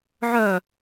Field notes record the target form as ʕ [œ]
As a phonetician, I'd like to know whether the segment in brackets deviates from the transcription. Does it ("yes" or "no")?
no